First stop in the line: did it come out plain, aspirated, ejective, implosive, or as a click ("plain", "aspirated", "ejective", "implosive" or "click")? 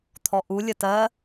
aspirated